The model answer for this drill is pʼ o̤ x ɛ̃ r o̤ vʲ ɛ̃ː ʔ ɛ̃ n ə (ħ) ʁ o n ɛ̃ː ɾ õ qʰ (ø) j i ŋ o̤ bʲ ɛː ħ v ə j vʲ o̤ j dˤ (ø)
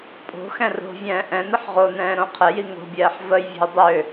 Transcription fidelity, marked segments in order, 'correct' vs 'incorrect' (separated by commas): correct, incorrect, correct